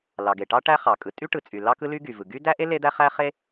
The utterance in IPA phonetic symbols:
l ɑ˩ ɡ e˩ ʈ ɑ˥ ʈ æ˥ χ ɑ˩ kʼ ɯ˩ tʼ y˥ ʈ ɯ˩ t͡sʼ y˩ l ɑ˥ k ɯ˥ l y˥ ɡ y˩ v ɯ˩ ɡ y˥ d æ˥ ʔ e˥ l e˥ d̪ æ˥ χ æ˥ χ e˥

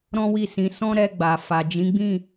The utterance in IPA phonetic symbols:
ɾ ɔ̃˦ w i˦˨ s ĩ˨˦ s ɔ̃˦ ɾ ɛ˧ ɡ͡b a˨ f a˨ d͡ʒ ĩ˨˦ ɡ͡b ĩ˦˨

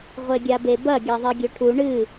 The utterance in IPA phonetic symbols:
ʁʷ e ɡʲ a b e b ɐ ɡʲ a ðˤ i ɡʲ ɵ ʈʰ u ɳ ɨ

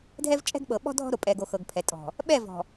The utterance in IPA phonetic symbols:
dʱ ɛ˦ v t͡ʃʼ ɛ̤˦ ɡ ɓ ɤ˨ ɓ ɔ̤˦ dʱ ɔ̤˦ ɾ o˨ pʼ ɛ˨ ɡ o˨ x ɤ˨ ɡ pʰ ɛ˨ tʼ ɔ̤˨ | ɓ ɛ˦˨ v ɔ̤˨

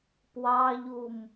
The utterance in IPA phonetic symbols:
p w ɑ ʎ u m

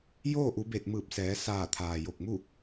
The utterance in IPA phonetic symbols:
j oː˥˨ ʔ u˩˧ b e˧˩ t̚ m ɯː˧˩ p̚ s ɛː˩˧ s aː˧˩ t̪ʰ aː˩ j o˧˩ k̚ m u˥˨

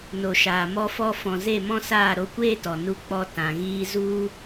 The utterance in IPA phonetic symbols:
n o˨ ʃ aː˨ m ɔ˧ f ɔ˧ f ɔ̃˨ z e˦˨ m ɔ̃˦ s aː˦˨ ɾ o˧ kʷ eː˦ t ɔ˨ n u˧ k͡p ɔ˧ t ã˨ ɣ iː˧ z u˦

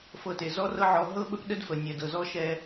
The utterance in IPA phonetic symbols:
f ɤ˧ t e˩ z ɔ˥ r ɤ˥ ʕ ɔ˧ ɦ ɤ˥ ɓ ə˥ p ɗ ə˥ d f ə˩ nʲ ɛ˩ d ɤ˩ z ɔ˥ ʃ ɛ˧

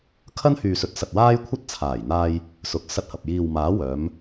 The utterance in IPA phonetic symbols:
kʰ ɐ˥ n h yː˨ s ɵ˨˥ t̚ s ɐ˨ t̚ w aː˥ j kʷʰ ɐ˥ t̚ t͡sʰ aː˨˩ j n̪ aː˧ j | s ʊ˨˥ k̚ s ɐ˧ t̚ h ɐ˨ p̚ j iː˨ w m aː˨˥ w œː˨˧ m

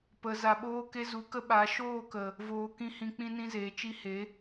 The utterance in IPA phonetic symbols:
p ə˨ z a˨ ɓ oː˧ k e˧ z u˨˦ k ə˦ ɓ a˨˦ ʃ oː˦˨ k ə˨ | v oː˧ k ĩ˦ h ĩ˧ k͡p ĩ˧ n ĩ˧ z eː˨ t͡ʃ i˧ h e˨˦

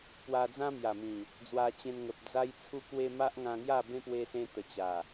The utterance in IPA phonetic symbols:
p w a˧ d͡z ã˦ m j a˨˩ m ĩ˨˩ | d͡z w a˧ t͡ɕ ẽ˧ n ŋ ə˨ p̚ d͡z a˧ j t͡sʰ u˧ k w e˧ m a˦ ʔ ŋ ã˧ ŋ j a˥˧ b ẽ˦ p w e˧ s ẽ˧ t̪ ə˨˩ t͡ɕ a˨˩

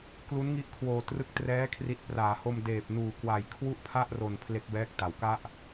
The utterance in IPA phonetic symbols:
k l u˦˥ n ŋ i˦˥ ʔ kʰ w oː˨˩ t r ɯ˦˥ k̚ t r ɛː˦˥ kʰ r i˨˩ t̚ p r aː˩˦ h o˧ m d eː˨˩ p̚ n uː˨˩ k w a˨˩ j kʰ w u˥˩ ʔ pʰ a˥˩ ʔ r o˨˩ n pʰ l e˦˥ k̚ b ɛː˦˥ k̚ t a˩˦ w k a˥˩ ʔ

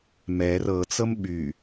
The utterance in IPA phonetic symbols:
m ɛ r ɤ t͡s ɤ m ɓ y

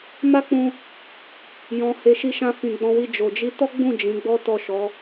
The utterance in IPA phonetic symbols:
m a˦ k͡p ũ˧ | j ɔ̃˨ h e˨ ʃ i˧ ʃ ã˧ f ĩ˨ ɡ͡b ɔ̃˧ w i˧ d͡ʒ o˨ d͡ʒ i˧ t ɔ˦ ɡ͡b ũ˦˨ d͡ʒ ĩ˨˦ ɡ͡b ɔ˦ t ɔ˦˨ ʃ ɔ˨˦

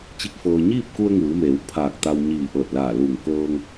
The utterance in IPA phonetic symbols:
t͡ɕ i˥˨ k̚ f ɤː˧ ɲ iː˥˨ p̚ k u˧ ə̯ ŋ ɯː˩˧ m eː˩˧ w pʰ aː˧˩ k̚ t̪ a˧ w ɲ iː˧˩ ʔ ɤː˧˩ t̚ l aː˧˩ l uː˧˩ ŋ k ɤː˧ ŋ

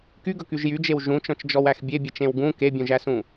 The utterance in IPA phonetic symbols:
k y ɡ ɵ k y ʒ j y d͡ʒ e w ʒ ũ t͡ʃ ɔ̃ t͡ʃ d͡ʒ ɔ w æ x bʲ e bʲ e t͡ʃ ẽ w ɡ ũ k e bʲ ũ ʒ æ s ũ

